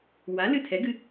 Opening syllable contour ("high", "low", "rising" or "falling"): rising